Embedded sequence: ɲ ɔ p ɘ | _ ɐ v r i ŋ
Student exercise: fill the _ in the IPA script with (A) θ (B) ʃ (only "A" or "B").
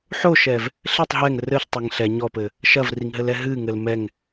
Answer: B